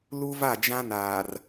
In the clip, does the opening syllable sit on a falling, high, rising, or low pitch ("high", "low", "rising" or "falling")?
high